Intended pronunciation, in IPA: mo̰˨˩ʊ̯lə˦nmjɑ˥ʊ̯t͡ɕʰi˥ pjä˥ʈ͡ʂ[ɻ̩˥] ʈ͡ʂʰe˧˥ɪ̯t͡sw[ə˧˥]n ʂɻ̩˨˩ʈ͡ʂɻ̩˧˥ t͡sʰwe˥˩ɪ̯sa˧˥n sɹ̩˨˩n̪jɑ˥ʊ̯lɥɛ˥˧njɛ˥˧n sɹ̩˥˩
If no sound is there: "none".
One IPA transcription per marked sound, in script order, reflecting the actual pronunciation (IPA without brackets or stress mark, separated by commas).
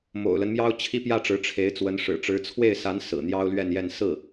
ɻ̩˧˥, ə˧˥